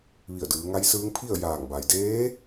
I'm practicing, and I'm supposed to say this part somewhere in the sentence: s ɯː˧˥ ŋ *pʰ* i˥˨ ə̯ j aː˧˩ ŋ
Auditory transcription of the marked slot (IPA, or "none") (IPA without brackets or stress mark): pʰ